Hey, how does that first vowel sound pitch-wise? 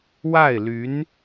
falling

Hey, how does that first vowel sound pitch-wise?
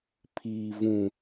low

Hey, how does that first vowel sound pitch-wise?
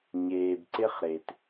low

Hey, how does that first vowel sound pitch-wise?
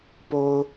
low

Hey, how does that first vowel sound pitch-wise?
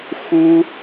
high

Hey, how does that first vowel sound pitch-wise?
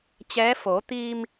rising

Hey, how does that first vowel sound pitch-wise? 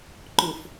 low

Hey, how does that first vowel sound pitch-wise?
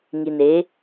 low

